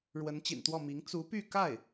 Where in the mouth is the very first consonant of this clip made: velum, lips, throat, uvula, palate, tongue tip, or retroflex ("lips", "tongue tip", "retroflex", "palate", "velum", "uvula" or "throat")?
retroflex